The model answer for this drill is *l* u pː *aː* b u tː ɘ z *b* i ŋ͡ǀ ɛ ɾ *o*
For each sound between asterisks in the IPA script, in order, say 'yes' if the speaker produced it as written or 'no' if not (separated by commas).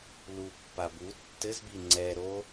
yes, no, yes, yes